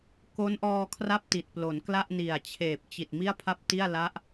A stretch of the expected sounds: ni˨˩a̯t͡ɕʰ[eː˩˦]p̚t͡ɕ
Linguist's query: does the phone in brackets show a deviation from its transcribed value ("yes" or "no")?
yes